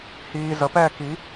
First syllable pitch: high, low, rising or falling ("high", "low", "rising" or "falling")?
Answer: low